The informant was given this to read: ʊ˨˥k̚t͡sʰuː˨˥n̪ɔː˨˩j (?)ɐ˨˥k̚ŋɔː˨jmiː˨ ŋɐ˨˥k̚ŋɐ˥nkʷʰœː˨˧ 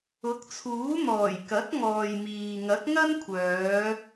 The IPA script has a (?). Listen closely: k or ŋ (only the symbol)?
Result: k